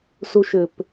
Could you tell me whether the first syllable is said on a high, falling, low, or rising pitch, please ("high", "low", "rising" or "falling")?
high